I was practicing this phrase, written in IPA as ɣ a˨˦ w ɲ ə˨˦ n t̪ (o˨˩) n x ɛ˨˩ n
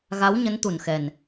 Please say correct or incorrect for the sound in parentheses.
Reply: incorrect